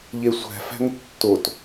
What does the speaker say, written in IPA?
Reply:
ʎesʷæ̤fæ̤ŋ tːot

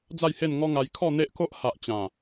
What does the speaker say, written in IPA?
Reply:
d͡za˥˧jhe˥˧nŋɔ˦ŋa˧j kʰɔ˥˧n̪e˦ʔko˦ʔ ha˨ʔt͡ɕã˨˩

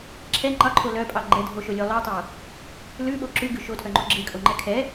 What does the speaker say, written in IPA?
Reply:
ǁʰɛ ŋ͡ǃɑǃʰo lœpʼɑ ɡ͡ǃɛdʱoʃolʲo lˠœtˤo | lʉɓo ǁʉɡʉ ʃotʰœŋ͡ǃo ɡ͡ǁekʼoŋ͡ǃɛ kʰɛ

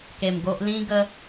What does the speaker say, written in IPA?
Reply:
ke˧mɡo˦ʔ lĩ˦ɡə˦

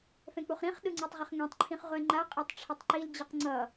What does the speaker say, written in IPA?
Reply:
fɛ̃k͡puχɾĩχ ɗɯŋ͡ǀetˤʁʌχŋẽtˤ ǃʰĩχʁʷɛŋ͡ǃa qʼɛtˤʈ͡ʂʰʌtˤǃil d͡ʑɯqŋ͡ǀʌ

